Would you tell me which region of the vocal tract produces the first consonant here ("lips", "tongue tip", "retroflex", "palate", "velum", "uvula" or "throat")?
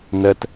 tongue tip